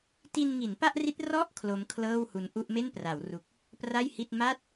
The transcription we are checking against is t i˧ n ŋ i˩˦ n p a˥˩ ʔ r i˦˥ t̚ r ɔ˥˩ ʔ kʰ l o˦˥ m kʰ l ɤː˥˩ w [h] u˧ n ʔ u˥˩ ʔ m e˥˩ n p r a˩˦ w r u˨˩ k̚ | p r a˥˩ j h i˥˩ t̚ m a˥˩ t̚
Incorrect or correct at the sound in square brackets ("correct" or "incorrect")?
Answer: correct